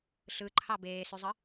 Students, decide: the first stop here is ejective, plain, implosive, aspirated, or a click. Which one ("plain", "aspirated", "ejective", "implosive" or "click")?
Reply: click